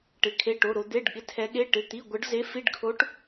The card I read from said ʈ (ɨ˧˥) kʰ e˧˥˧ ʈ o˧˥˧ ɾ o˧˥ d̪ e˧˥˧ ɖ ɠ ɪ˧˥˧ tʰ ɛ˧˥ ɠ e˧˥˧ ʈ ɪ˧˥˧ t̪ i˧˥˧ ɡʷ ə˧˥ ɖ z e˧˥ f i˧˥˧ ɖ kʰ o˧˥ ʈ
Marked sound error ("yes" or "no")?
yes